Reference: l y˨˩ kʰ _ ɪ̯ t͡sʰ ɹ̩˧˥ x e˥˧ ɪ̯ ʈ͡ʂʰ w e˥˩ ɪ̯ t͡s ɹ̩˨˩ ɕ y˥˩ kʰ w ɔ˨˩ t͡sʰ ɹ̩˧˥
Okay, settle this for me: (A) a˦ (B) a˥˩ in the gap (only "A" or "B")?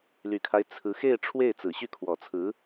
A